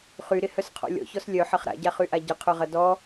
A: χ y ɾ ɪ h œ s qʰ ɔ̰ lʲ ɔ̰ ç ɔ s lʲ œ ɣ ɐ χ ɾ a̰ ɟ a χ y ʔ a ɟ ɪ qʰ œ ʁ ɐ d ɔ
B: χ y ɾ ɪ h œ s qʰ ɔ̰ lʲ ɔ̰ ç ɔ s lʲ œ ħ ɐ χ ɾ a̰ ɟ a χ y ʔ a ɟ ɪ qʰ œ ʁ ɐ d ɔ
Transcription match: B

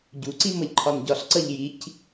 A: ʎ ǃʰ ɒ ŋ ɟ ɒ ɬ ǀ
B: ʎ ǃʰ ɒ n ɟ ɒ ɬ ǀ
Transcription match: B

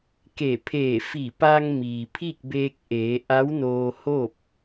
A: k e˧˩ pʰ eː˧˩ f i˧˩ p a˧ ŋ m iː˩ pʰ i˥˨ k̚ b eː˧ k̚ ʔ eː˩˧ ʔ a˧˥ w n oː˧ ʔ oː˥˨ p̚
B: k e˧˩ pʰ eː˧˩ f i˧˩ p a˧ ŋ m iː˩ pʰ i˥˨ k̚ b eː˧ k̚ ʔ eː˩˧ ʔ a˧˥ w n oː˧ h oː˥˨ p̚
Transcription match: B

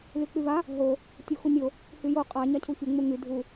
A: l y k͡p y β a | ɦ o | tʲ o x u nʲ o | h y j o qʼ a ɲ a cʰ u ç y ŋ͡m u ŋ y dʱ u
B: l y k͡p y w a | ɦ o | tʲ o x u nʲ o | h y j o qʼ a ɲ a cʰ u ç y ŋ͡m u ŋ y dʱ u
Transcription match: A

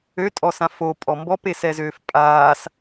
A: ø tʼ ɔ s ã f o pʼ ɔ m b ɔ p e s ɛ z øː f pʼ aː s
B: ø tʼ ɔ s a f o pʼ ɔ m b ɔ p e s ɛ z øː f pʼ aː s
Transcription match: A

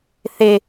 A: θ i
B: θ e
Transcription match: B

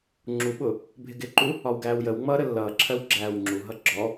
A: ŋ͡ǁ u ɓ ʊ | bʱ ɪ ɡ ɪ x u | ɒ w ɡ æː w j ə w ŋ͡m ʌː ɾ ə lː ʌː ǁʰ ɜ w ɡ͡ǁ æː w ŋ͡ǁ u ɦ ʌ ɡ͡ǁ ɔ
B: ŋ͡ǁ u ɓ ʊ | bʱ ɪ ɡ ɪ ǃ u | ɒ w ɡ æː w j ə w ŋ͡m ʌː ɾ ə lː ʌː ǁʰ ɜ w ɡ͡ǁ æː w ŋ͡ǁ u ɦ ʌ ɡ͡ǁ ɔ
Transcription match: B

